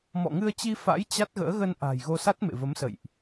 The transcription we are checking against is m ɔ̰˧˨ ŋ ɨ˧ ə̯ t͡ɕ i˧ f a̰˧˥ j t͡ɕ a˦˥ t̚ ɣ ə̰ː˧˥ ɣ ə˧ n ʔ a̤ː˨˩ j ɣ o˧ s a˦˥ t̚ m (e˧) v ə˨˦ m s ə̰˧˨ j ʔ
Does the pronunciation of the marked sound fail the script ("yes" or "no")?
yes